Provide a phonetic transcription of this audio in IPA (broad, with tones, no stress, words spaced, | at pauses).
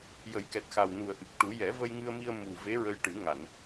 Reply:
jə˨˩˦jkɛ˨˩t̚xa˨˩w nu˨˩ə̯ʔɨ˨˩k̚ʈu˨˩˦ jɛ˨˩˦və˧jŋɨ˧ə̯mi˧ə̯ mu˨˩ ve˧˥ɹə˧jʈɨ˨˩˦ ŋa˨˩˨n